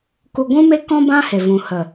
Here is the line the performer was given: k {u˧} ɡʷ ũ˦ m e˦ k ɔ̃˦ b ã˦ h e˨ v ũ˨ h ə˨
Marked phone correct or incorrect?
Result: correct